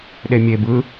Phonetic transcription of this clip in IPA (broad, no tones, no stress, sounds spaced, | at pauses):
ɗ e mʲ e b ɯ